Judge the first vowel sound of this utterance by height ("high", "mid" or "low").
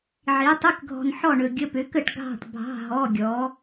high